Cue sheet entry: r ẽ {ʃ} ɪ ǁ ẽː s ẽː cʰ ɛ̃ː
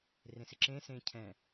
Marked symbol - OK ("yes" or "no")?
no